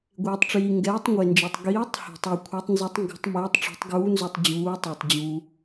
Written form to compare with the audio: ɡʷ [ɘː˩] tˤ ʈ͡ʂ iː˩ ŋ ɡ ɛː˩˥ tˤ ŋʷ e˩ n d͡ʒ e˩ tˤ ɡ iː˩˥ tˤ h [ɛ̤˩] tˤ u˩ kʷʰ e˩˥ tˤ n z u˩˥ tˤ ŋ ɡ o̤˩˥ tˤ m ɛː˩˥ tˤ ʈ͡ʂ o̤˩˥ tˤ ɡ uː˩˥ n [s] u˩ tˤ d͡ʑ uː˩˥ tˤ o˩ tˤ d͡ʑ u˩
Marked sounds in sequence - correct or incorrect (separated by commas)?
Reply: incorrect, correct, incorrect